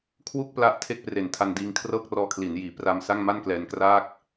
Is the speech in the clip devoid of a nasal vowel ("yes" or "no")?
yes